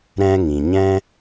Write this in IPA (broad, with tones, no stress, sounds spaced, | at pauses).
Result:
ɾ ɛ̃˧ ŋ ĩ˨ ɲ ɛ̃˦